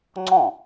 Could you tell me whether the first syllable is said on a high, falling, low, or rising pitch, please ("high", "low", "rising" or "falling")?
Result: falling